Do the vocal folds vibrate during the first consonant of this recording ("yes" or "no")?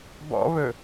yes